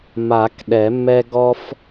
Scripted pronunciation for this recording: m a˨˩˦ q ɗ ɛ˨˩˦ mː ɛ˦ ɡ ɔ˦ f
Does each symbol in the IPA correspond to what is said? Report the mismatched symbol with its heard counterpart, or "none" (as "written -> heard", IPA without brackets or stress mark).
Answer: q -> k